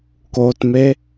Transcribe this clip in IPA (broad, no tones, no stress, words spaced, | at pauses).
kotme